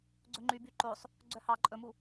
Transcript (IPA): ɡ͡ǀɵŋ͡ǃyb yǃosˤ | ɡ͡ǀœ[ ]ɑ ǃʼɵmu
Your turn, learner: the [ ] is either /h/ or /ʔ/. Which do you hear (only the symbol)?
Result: h